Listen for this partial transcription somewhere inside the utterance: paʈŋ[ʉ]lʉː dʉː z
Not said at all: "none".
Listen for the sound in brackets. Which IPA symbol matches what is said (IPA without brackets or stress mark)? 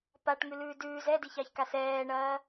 ʉ